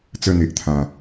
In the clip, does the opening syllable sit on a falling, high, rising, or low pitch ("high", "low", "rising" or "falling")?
falling